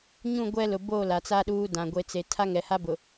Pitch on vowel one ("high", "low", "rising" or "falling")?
falling